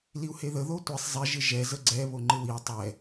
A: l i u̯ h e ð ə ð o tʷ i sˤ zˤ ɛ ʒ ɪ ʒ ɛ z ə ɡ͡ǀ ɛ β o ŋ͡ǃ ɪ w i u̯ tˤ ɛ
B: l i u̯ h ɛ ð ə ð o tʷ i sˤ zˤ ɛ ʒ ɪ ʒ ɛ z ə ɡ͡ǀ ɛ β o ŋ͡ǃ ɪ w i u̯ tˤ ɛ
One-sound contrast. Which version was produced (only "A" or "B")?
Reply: A